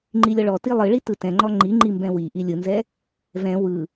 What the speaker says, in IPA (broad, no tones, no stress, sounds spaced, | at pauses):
ŋ͡ǃ i lʲ ɔ ɭ ɔ t i lˠ ɯ ɭ i t ɯ t ɛ̃ ŋ͡ǃ ɔ ŋ͡ǃ i ŋ͡ǃ i m b ɛ̃ w i ʔ i lʲ ɯ n z ɛ | v ɛ̃ w ɯ